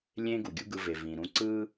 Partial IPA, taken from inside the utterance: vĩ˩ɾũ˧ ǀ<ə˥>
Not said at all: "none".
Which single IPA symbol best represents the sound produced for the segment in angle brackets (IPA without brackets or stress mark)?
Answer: ɯ˥